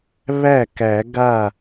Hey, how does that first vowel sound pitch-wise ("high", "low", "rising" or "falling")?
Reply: falling